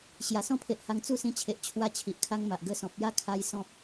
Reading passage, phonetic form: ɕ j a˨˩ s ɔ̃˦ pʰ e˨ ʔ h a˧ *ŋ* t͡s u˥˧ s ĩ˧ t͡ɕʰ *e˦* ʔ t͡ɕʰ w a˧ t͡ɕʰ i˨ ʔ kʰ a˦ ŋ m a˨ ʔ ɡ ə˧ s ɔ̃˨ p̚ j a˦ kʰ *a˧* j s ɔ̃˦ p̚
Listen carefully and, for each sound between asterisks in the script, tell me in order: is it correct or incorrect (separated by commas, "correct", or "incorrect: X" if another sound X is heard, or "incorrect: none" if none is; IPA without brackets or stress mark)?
correct, incorrect: e˨, correct